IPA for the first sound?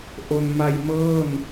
ʔ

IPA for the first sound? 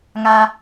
ŋ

